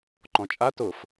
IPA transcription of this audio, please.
ǃ ɔ̃ t͡ʃʼ a t ʊ f

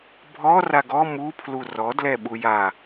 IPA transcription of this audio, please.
bʱ ɔ r a ɡ ɔ m u pʰ l u r ɔ d l ɛ ɓ u j a

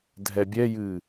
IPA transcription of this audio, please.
dʱ ɛ bʲ ɛ j ɨ

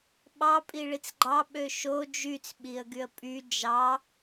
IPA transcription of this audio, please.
ɓ ɑ pʼ i ɭ i t͡s ɡ͡ǃ ɑ ɓ ø ʃ o d͡ʒ y t͡s ɓ i ə̯ ɡ y ə̯ pʼ y d͡ʒ ɑ

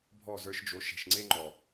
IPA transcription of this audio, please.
bʱ ɔ˦˨ z ə˞˧ ʃ d͡ʒ o˨˦ ʃ e̤˨ ʃ ŋ͡ǀ e˦ ŋ͡ǃ ɔ˨

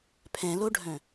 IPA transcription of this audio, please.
pʰ ɛ̃ l o ɖʱ œ̃

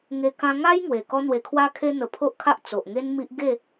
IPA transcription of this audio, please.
ŋ e˧ k ã˧ ŋ a˦ j ŋ w e˨˩ k ɔ˦ n̪ w e˧ kʰ w a˧ kʰ e˧ n̪ ə˨˩ pʰ o˦ ʔ kʰ a˦ ʔ t͡s o˨ ʔ ŋ e˦ n m i˦ ʔ ɡ e˥˧

